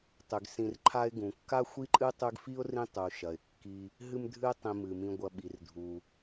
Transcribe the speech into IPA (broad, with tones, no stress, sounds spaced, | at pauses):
tˤ ʉ˩ ɡ s ĩ˨ r ǃʰ a˦ ɪ̯ ɡ ũ˩ kː a˥ xʷ i˥ ǃʼ ɨ˥ tˤ ʉ˦ ɡ f i˥ ʊ̯ r ĩ˦ tˤ u˩ ʃ ɐ˩ ɪ̯ kː i˨ | ɦ ɨ˦ m dʱ ɨ˦ ɪ̯ tˤ ĩ˨ m ɨ˩ m ĩ˨ ɡʷ ɐ˨ ɓ i˩ r dʱ u˩